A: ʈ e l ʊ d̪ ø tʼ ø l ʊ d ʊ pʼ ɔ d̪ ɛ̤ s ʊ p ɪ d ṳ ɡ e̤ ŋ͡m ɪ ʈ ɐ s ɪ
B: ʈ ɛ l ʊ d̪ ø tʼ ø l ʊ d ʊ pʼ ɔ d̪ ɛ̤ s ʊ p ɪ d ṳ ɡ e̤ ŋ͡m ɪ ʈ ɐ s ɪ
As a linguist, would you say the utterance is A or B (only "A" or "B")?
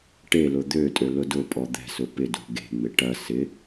A